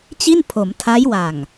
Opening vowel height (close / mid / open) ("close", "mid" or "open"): close